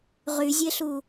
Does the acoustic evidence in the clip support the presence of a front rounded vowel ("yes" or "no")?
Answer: yes